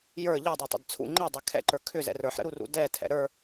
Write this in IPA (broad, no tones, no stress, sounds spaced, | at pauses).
j ə˞ ʎ ɛ dˤ ə˞ tˤ ɛ̰ d t͡sʰ ṵ ŋ͡ǃ ɛ dˤ ɛ kʰ ɛ̰ ǃ ə˞ kʰ ʏ z ɛ̰ r ə˞ ħ ɾ ə̰ ɾ u r ṵ d ɛ tʰ ɛ̰ ɾ ə˞